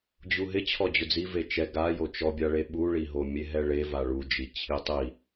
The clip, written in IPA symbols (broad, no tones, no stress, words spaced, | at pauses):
d͡ʑuɦɪ t͡ɕʰɔd͡ʑʊd͡zi vet͡ʃɛ ɡa jot͡ʃɔbʲaɭe ɓuɭiɦo mʲeɦɛɭeva ɭud͡ʒi t͡ɕʰitˤi